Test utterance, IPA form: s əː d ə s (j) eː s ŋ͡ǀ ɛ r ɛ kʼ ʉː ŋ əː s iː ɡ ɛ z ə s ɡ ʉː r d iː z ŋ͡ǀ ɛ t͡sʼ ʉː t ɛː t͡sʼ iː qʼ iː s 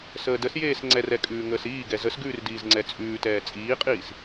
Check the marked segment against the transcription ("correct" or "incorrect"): correct